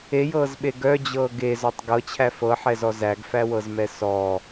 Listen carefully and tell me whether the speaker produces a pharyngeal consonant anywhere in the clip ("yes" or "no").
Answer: yes